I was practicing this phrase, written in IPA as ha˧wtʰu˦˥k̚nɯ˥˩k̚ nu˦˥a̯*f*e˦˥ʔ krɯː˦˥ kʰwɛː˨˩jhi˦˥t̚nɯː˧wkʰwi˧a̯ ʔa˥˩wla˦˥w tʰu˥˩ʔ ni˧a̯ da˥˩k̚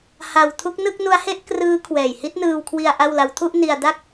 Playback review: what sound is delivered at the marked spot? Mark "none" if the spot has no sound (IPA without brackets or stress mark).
h